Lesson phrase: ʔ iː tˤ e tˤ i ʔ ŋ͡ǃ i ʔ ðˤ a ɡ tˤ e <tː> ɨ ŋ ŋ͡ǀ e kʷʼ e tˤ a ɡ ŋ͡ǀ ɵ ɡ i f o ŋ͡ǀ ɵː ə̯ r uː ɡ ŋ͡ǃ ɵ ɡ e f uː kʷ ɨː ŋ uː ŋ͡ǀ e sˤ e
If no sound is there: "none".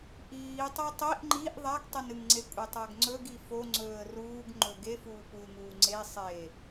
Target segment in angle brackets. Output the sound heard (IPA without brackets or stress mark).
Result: n